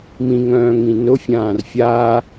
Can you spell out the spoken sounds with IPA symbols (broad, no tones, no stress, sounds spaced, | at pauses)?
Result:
m ĩ ŋ œ̃ː ŋ ĩ n ʊ fʲ ãː r fʲ aː